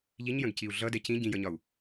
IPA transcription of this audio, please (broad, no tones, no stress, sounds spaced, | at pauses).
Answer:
ʎ i ɲ j ə̃ ɡ c i u̯ ɮ ʌ d ɛ c ĩ ɟ ĩ j ʌ ɲ ɒ u̯